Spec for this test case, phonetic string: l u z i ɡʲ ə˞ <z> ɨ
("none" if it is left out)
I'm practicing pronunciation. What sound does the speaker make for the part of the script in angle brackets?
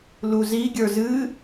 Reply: z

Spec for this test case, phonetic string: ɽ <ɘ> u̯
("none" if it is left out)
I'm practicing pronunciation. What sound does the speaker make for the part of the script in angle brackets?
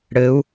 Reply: ɘ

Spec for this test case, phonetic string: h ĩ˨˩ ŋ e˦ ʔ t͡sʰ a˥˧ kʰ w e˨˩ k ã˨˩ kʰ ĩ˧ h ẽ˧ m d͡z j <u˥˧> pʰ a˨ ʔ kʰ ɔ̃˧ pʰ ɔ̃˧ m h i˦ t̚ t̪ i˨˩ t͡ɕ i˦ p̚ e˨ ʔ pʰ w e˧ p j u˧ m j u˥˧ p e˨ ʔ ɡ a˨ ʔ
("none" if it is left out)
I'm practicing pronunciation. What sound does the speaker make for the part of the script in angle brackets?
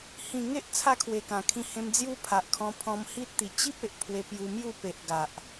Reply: u˦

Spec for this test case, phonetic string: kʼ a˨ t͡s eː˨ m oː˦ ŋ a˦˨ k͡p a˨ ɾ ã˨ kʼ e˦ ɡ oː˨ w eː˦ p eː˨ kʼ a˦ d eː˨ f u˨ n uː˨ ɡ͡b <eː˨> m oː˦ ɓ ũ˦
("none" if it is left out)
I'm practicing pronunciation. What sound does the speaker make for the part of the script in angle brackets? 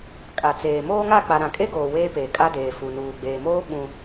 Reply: eː˨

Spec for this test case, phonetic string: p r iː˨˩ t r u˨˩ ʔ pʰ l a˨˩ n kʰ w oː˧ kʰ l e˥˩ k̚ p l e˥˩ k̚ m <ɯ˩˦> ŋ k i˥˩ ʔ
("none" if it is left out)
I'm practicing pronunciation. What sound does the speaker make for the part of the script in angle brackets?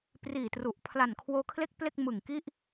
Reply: ɯ˨˩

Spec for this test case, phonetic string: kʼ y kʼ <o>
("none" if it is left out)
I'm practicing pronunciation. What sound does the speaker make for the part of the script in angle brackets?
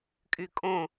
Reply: õ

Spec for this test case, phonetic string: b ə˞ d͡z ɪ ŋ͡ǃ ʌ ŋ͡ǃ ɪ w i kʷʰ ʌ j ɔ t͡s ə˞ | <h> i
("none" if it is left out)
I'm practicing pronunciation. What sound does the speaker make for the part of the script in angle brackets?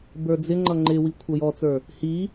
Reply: h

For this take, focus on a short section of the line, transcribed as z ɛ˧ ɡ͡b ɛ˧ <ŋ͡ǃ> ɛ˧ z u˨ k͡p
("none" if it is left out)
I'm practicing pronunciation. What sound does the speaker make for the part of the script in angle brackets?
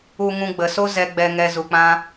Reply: ŋ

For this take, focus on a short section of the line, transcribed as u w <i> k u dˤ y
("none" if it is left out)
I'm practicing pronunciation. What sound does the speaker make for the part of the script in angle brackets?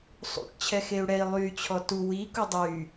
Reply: i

